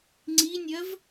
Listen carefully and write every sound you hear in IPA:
ŋ͡ǀinʲɜv

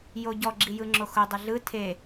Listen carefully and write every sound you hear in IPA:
joɟɔɡ͡ǁijɯ ŋ͡ǁoxʊdˤə ɮɯ tʰe

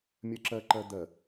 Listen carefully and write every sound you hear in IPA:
mʲɜǁɜǃɜ d̪ɜ

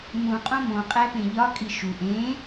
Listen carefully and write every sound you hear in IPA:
mũ qʼõmõ qʼæpẽʎɒ kʼiʃu ʔẽ

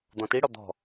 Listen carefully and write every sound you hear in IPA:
d̪ɔ̃tiɽɔ d̪ɔ̤

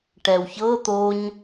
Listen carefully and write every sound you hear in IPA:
ʈɛwçɤ t̪oɲ

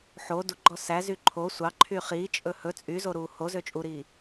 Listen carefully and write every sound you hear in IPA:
ħo duɡ͡ǃɔ sæzy ǃʰo sʷɑ ǃʰyχiːt͡ʃʼɵ hɵ t͡sʼyzo ɾuːhozø t͡ʃʼuɾiː

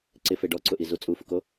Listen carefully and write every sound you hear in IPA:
ǀɪfe ɖɔǀʊʔizu t͡sʼufʊko

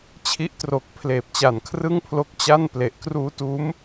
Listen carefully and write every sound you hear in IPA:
t͡ɕʰi˦˥ʔtro˨˩k̚ pʰleː˨˩p̚t͡ɕa˨˩nkʰrɯ˥˩ŋpʰlo˦˥k̚ t͡ɕa˥˩n ple˨˩ʔkruː˧tuː˦˥m

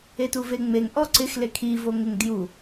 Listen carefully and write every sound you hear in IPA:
etuveŋ͡meŋ ʔɔǀɪxle kʰivoŋɪŋ dju

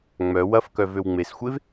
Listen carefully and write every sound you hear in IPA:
ŋ͡mœ wɐfkœ vøwŋ͡mesxʷev

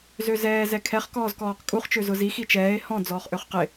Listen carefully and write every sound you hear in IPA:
zøzɛː zɛkʰɛχ kɔːzkɔːqkʼuχ t͡ʃøzʊzi xit͡ʃɛːe̯ hɔ̃ d͡zɔːχʔøχqɪ

